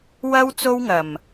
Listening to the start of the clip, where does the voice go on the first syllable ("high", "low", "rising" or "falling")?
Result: high